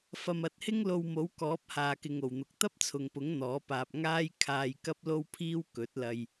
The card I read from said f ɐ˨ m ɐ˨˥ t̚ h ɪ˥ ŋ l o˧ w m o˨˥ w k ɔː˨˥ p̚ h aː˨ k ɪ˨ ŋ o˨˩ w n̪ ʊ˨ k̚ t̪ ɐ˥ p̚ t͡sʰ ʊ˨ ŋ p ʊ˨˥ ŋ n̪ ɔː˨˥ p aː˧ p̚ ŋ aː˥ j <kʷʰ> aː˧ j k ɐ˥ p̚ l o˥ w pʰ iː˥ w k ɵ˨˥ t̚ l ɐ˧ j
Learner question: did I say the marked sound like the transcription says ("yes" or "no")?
no